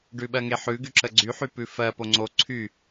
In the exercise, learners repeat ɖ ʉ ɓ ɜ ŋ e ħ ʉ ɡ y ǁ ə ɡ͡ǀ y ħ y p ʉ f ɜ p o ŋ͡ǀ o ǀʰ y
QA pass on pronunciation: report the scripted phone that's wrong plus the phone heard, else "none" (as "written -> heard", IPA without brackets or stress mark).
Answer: none